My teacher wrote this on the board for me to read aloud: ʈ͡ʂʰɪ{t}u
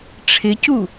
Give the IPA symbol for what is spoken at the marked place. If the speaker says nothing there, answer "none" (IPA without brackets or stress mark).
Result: c